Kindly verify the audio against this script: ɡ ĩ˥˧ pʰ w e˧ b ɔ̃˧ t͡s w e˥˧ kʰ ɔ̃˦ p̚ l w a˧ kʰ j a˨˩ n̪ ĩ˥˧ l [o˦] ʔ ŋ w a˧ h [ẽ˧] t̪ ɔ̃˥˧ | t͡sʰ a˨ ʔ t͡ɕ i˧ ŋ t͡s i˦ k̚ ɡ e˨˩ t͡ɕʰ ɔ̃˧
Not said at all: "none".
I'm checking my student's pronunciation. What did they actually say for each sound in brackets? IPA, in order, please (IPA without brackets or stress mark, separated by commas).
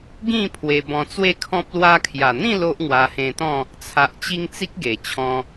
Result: o˦, ẽ˧